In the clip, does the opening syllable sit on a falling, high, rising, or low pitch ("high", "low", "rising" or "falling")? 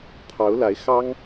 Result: rising